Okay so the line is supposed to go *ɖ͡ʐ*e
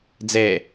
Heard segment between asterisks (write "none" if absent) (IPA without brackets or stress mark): d͡z